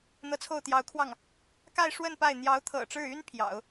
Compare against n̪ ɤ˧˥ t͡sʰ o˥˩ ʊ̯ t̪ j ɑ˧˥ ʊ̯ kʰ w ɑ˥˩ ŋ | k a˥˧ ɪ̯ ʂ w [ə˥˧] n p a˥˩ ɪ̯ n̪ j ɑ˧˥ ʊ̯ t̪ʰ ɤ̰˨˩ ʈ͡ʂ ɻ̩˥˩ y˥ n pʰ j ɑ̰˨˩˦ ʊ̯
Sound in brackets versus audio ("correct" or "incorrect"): correct